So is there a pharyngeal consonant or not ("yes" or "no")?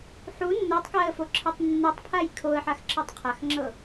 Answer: yes